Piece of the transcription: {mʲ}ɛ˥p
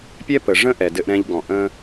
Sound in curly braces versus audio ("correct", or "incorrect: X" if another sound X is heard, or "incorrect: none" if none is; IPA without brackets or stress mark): incorrect: pʲ